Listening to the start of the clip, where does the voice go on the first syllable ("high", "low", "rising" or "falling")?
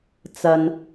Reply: low